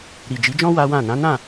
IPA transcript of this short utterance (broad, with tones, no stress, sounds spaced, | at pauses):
ɾ i˨ d͡ʒ i˨˦ d͡ʒ ɔ̃˦ w a˦ w ã˦˨ n ã˨˦ n ã˦˨